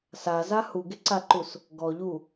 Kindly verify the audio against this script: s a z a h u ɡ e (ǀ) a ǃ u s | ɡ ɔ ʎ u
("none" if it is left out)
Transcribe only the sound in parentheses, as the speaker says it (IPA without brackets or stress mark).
ǀ